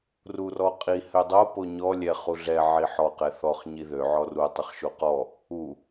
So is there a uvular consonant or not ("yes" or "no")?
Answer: yes